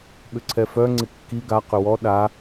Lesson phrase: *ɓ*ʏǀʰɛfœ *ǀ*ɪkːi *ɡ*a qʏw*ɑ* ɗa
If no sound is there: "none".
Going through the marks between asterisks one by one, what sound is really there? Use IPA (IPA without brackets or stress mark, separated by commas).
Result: ɓ, ŋ͡ǀ, ɡ, ɔ